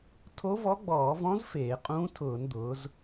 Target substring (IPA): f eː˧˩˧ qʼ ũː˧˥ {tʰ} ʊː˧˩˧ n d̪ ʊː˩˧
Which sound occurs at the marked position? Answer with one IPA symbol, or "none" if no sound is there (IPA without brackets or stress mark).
tʰ